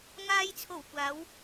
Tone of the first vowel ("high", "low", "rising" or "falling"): low